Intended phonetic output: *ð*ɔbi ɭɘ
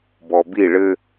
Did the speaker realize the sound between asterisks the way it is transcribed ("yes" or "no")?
no